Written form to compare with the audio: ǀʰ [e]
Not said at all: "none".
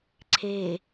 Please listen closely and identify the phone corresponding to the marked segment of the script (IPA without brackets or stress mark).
e